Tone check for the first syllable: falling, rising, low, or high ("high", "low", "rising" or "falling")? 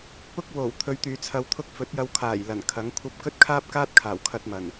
high